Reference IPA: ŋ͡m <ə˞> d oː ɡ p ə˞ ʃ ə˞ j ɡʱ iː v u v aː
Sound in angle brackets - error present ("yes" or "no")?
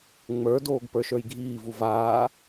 no